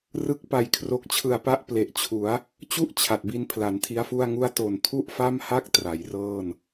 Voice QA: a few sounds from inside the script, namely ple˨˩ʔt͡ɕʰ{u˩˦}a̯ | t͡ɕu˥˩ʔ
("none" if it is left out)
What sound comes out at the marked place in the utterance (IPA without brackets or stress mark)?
u˩˦